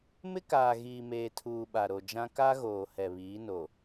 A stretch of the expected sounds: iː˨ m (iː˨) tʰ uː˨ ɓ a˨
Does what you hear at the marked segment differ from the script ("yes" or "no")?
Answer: yes